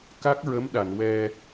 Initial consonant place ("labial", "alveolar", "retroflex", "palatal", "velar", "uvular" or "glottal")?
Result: velar